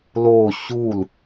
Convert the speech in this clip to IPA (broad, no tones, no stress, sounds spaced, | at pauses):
l o ɕ u l